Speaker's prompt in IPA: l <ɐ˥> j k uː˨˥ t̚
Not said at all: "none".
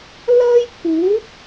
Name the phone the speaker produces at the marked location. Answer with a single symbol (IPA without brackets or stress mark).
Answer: ɐ˥